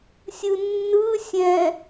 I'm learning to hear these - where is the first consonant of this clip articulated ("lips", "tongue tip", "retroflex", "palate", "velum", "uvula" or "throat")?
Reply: tongue tip